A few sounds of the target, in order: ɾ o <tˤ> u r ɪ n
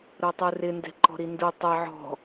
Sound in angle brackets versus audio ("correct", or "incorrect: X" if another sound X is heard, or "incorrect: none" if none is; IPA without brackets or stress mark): correct